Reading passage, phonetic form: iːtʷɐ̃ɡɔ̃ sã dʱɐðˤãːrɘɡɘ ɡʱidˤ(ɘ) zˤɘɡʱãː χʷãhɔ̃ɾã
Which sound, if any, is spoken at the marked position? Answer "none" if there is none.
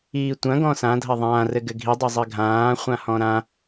ɘ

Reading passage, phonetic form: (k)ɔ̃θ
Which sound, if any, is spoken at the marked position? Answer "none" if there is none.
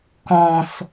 k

